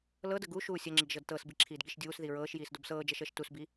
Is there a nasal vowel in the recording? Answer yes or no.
no